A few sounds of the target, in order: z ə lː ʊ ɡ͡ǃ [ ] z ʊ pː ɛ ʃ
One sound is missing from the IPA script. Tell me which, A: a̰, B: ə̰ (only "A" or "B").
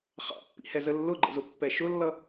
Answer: B